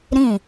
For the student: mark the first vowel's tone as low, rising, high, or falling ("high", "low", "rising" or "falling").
falling